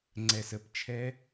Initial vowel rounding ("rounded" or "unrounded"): unrounded